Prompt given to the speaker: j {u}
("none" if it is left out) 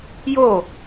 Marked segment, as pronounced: o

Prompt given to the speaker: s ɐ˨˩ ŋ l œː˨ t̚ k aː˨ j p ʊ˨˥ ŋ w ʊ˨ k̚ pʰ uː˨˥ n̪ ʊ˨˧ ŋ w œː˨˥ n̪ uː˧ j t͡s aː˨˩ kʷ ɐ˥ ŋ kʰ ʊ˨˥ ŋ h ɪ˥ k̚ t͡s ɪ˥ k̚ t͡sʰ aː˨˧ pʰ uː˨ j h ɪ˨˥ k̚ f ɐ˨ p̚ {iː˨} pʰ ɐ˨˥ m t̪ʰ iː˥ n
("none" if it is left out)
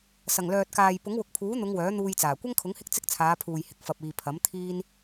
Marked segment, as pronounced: iː˨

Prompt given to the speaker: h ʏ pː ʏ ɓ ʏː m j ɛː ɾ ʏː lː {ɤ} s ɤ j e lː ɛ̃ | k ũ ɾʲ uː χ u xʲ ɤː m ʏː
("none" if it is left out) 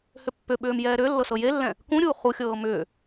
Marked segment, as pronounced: ɤ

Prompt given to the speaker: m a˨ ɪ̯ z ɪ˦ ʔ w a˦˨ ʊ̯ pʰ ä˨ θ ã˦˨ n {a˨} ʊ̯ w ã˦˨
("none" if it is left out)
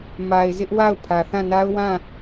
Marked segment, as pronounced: a˦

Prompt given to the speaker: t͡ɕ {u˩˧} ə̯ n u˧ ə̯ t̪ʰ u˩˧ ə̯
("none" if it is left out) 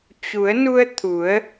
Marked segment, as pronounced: u˩˧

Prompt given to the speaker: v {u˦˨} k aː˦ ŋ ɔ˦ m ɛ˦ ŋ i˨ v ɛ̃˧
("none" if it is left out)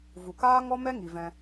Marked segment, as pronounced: u˨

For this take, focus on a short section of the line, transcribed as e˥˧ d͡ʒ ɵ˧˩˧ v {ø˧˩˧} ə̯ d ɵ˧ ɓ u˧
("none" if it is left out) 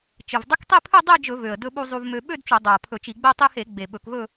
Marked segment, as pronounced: ø˨˩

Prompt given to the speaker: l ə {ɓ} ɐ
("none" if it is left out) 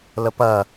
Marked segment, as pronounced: p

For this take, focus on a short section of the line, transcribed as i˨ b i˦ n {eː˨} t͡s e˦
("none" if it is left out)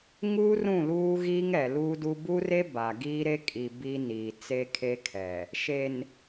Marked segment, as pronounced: iː˨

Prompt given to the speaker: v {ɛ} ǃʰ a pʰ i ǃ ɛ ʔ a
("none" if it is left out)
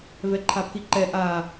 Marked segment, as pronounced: ɛ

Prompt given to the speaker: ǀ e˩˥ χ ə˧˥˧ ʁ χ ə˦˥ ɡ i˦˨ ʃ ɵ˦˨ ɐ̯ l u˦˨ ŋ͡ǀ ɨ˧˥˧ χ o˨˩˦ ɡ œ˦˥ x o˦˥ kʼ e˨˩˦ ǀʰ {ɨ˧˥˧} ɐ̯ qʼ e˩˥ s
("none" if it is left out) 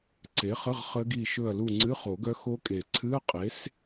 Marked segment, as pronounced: ɨ˧˥˧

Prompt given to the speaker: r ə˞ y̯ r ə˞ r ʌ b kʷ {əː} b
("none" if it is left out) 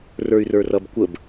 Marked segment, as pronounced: ə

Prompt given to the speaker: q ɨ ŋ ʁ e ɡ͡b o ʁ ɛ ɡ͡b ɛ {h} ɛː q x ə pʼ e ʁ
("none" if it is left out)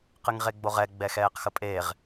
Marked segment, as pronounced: x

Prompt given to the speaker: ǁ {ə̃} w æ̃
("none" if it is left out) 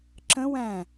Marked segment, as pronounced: ə̃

